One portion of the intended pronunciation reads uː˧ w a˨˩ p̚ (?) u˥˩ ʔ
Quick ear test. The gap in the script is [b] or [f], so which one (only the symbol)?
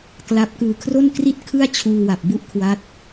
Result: b